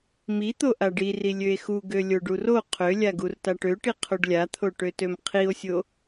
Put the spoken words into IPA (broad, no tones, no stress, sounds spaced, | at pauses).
m i t̪ o ʔ a ɖ i r i lʲ ø e̯ x u ɡ ø lʲ o ɖ u r o qʰ ø lʲ a ɡ u r t a ʈ ø ʈ i qʰ o ɖ lʲ a t̪ʰ o ʈ ø t ø m qʰ i o̯ sʲ o